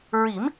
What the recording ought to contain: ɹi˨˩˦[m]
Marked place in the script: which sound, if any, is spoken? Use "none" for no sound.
m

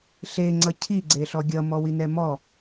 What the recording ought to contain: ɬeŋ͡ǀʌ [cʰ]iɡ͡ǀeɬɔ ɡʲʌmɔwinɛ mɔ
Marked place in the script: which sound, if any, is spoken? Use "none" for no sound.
cʰ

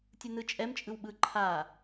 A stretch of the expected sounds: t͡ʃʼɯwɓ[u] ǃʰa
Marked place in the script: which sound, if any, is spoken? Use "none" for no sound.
ɯ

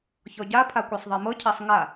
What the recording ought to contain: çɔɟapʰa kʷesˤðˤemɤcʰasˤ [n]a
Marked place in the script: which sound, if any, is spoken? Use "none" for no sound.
ŋ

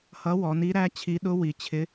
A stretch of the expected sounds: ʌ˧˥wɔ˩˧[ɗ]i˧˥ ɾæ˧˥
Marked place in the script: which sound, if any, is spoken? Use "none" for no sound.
n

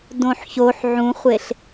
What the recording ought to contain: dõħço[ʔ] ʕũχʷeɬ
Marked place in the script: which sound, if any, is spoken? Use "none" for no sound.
ħ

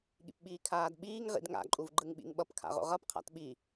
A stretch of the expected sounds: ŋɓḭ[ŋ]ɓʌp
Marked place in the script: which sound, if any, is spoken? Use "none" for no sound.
ŋ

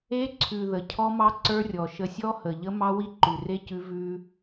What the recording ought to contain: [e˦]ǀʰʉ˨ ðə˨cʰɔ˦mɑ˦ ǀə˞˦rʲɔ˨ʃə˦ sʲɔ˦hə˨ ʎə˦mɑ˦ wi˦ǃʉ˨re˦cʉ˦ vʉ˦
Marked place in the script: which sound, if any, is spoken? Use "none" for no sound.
e˦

